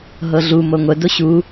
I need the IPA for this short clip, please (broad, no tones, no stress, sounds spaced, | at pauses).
ɦ ɤ ɮ u m ɤ ŋʷ ə d o ɕ u